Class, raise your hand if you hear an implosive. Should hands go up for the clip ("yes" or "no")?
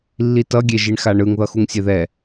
no